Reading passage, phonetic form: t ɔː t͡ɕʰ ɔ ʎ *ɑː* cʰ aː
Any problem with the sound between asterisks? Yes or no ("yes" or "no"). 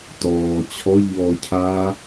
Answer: yes